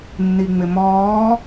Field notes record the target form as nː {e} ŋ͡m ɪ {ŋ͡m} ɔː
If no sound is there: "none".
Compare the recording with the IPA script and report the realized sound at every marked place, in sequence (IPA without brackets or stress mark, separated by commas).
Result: i, m